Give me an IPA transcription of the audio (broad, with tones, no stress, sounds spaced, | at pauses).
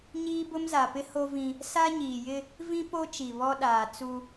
ɲ iː˦ b ʊ˦ m z a˨ p ɪ˦ h o˦ v ĩ˦ | s a˦ ɲ iː˨ j ɪ˦ | v ĩ˦ p o˦ t͡ʃ i˨ β ɔ˦ ɗ aː˨ t͡s u˦